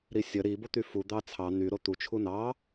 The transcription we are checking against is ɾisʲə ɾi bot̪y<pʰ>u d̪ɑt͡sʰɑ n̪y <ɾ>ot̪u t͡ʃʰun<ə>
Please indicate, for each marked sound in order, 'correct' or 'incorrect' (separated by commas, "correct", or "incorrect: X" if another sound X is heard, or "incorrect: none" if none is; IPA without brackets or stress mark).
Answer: incorrect: f, correct, incorrect: ɑ